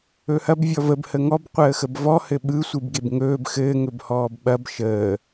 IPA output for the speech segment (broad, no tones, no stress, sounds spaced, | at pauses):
ɵ h ɐ b vʲ ɔ v ə b h ə ŋ ɔ b qʷ əː x ə b v ɔ h ɘ ɓ ɯ sʷ ɯ b ɡ e b ŋ ɵː b x ɘː ŋ ɵ b h ɔː b ɓ ɐ b ʃ əː